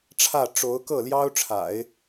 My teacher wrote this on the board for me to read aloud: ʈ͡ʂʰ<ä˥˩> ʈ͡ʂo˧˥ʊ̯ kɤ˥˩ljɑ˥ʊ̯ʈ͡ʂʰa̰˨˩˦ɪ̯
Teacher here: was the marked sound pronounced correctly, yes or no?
yes